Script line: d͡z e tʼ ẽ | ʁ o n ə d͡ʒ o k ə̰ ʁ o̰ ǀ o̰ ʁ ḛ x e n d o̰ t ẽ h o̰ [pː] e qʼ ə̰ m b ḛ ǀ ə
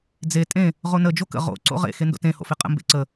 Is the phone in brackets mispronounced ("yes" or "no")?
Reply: yes